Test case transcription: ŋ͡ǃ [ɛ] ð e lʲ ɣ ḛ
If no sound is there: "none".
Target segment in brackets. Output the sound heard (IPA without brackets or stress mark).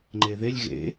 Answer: e